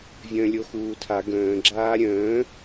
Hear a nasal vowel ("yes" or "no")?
yes